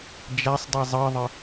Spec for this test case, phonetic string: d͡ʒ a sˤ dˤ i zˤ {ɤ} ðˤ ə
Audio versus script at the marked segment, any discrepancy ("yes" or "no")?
no